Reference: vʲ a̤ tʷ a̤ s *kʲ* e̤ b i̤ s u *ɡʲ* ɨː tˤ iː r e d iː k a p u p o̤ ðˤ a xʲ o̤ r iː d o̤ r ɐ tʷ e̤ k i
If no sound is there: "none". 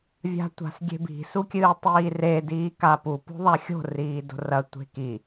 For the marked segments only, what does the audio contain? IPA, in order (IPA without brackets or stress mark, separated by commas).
ɡʲ, kʲ